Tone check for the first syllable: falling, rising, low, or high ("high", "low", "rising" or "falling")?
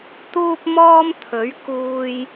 high